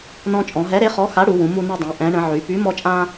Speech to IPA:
n ɔ̃˧ t͡ʃʼ ɔ̃˩˧ ɦ ɛ˨˥ ɾ e˨˥ χ ɔ˨˥ x a˨˥ ɽ u˩˧ w ũ˩˧ m u˧ n e˧ dˤ ũ˩˧ ʔ ɛ̃˩˧ ɳ ə̃˩˧ ʕ y˩˧ p y˨˥ m ɔ˧ t͡ʃʼ ã˧

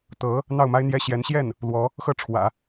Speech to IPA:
t̪ ɤ˧˥ | n̪ ɑ˥˩ ʊ̯ m a˥ ɪ̯ n̪ j ɛ˥ ɕ j ɛ˧˥ n ɕ j ɛ˥˩ n | l w ɔ˧˥ | x ɤ˥˩ ʈ͡ʂʰ w ä̰˨˩˦

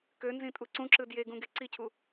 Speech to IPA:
k ø n z ĩ tʼ u ǀ ũ ǁ ɯ d j e ɡ ũ ɡ e ǀ i cʰ u

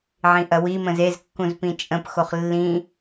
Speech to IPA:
ʕ ĩ ʔ ɐ w i m ə̃ z e z kː ũ z p ĩ t͡ʃʼ ə̃ p x o χ lː ĩ

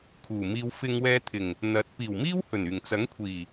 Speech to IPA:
kʰ uː˨˩ m iː˧ w f ɪ˧ ŋ w ɛː˧ t̪ʰ ɪ˨˩ ŋ | n̪ ɐ˨˥ t̚ p iː˨˩ w m iː˥ w h ɵ˨˩ n yː˨˩ ŋ t͡s ɐ˨˥ ŋ kʷʰ iː˨˩

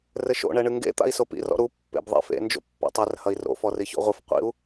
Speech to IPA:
r ɘ ʃ o̰ ɳ ɛ ɳ ɨ ŋ ɡ ḛ t̪ a̰ i̯ s o p ḭ r ɔ̰ ɾ u pː ḛ b ðˤ ḛ f ḛ n d͡ʒ o̰ pː a̰ tˤ ɛ r h ɐ i̯ r o̰ f ɔ r i ç o̰ ʁʷ ɨ f qʷ ḭ u̯

